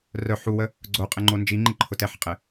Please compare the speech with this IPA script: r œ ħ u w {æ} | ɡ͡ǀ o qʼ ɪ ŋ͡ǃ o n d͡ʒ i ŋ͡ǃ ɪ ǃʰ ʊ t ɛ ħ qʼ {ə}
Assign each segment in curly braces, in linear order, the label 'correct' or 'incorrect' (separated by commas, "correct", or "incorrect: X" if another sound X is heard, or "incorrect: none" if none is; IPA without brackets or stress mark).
incorrect: ə, incorrect: ɪ